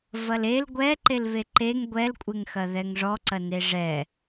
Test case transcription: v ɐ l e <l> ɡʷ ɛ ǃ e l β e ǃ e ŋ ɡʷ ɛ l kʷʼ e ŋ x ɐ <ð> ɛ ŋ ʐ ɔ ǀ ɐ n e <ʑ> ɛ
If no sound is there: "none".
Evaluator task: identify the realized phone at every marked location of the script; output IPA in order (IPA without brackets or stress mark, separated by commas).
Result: l, ð, ʐ